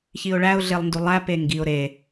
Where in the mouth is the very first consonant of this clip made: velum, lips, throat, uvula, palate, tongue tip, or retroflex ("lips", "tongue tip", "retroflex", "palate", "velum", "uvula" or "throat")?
palate